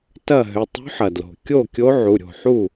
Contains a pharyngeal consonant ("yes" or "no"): yes